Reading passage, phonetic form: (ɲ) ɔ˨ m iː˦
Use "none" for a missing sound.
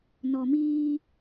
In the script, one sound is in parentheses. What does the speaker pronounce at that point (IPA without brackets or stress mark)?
n